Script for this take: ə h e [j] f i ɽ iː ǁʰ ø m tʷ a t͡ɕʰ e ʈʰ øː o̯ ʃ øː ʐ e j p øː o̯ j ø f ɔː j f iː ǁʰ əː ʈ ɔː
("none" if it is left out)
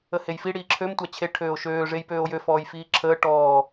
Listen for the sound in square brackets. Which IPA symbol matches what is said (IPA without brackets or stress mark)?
j